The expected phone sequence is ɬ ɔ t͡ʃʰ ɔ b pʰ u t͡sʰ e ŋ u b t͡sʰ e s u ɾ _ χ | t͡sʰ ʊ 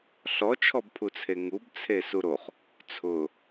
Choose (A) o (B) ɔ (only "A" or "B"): A